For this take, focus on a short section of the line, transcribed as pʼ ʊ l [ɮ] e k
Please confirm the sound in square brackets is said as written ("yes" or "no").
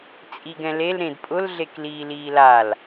yes